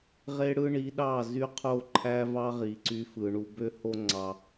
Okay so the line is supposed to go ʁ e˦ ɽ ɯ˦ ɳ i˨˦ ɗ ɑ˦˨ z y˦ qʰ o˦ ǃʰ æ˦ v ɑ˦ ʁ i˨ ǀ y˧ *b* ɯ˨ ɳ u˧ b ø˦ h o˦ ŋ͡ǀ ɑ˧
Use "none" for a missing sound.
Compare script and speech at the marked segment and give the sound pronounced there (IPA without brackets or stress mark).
f